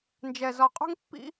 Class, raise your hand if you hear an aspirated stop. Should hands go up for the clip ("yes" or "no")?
no